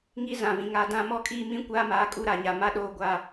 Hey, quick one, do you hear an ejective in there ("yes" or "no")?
yes